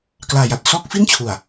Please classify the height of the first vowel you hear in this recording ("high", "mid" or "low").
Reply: low